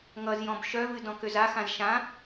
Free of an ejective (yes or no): yes